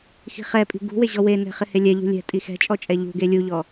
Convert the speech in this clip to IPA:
x i̤ χ ɛ pʼ i̤ ɡ ṳ w e ʑ ɔ w e n ɛ̤ χ ɪ h e lʲ ɛ ʎ ṳ lʲ ɛ̤ tʼ i x ɛ̤ t͡ʃʼ ɔ t͡ʃʼ ɛ ʎ ṳ ɡ e lʲ u ʎ ɔ

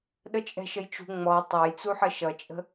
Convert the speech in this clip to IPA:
ɗ ə t͡ʃʼ ɛ̤ ʃ ə j t͡ʃ ṳ ŋ͡m ɔ tˤ ɑ j t͡s u ħ ə ʃ ʌ t͡ʃʼ ə̤

